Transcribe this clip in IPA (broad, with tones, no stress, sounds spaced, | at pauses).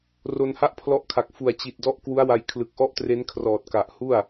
r o˧ n h a˥˩ ʔ pʰ l ɔ˦˥ ʔ kʰ a˨˩ k̚ f u˨˩ a̯ t͡ɕ i˨˩ t̚ d ɔ˦˥ ʔ k w u˦˥ a̯ w a˧ j kʰ l ɯ˨˩ k̚ ʔ ɔ˥˩ ʔ t r e˦˥ n kʰ r ɔː˨˩ t̚ k a˨˩ ʔ h u˥˩ a̯